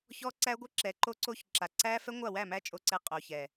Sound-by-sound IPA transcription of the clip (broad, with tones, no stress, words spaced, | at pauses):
çɔ˦ǀæ˦ɡʷə˦ǁɛ˨˦ ǃo˦ǀo˦ç ǁa˨ǀæ˦ fɛ˦ŋʷa˦˨wæ˦˨mæ˦ t͡ʃʼo˧ǀɛ˧ qʼo˨çɛ˨